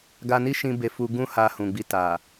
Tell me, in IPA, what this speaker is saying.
ɡ a˧ n i˦ ʃ ĩ˧ b e˧ f u˧ ɡ ũ˦ h a˧ h ũ˨ ɡ͡b i˧ t a˨

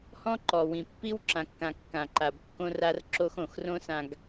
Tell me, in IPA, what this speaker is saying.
h ɔ̃˦ ǃ ɔ˨ w ĩ˨ pː i˦ w ǁ ã˨ kː ã˨ kː ã˨ ǃ a˨ b kː õ˦ r a˦ r ǁ o˦ x õ˨ x r õ˦ s ã˨ ɡ

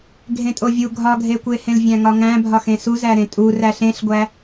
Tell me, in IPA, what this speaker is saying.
ɡʱ ẽ tʼ o vʲ u ɡʱ ɒ ɡʱ e kʷ e h ẽ l vʲ æ̃ ŋ ɒ ŋ æ̃ bʱ ɒ x ẽ s u z æ ɾ ẽ tʼ u r æ ɬ ẽ ɬ ɡʷ æ

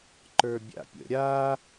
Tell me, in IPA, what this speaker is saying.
ǃ ə˞ bʲ a̰ pʲ ə̰ ɾʲ a

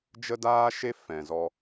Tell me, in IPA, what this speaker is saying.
d͡ʒ ə˦ d aː˦ ʃ e˦ f ɛ̃˨ z ɔ˧

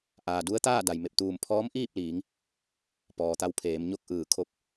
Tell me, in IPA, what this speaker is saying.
ʔ aː˩ d u˧˥ ə̯ t̪ aː˥˨ d a˩ j m e˧˩ p̚ t̪ uː˧˩ m pʰ ɔː˧˥ m ʔ iː˥˨ p̚ l iː˩˧ ŋ | p ɔː˩ t̪ a˧ w pʰ eː˩˧ m ɲ o˥˨ k̚ ʔ ɯː˧˩ kʰ o˧˥ p̚

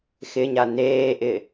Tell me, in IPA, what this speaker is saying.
x ɪ ɲ a n eː ʔ ɪ

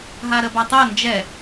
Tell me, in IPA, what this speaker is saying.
ɦ a ɾ ə b a tˤ ɛ n d͡ʒ ɛ

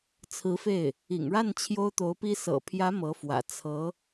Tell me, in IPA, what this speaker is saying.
t͡sʰ ɹ̩˧˥ f e˥˩ ɪ̯ | ḭ˨˩ ŋ ɻ a˥˩ n t͡ɕʰ j o˥ ʊ̯ t̪ o˧˥ ʊ̯ p i˥ s ɤ̰˨˩ pʰ j ä˧˥ m ɤ˧˥ f w ä̰˨˩ t͡sʰ ɤ˧˥

